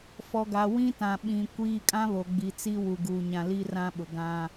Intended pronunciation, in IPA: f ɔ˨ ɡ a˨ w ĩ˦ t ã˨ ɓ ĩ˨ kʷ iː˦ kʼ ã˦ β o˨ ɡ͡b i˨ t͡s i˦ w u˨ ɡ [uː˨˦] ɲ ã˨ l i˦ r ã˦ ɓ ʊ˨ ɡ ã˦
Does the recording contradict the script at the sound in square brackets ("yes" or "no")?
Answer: yes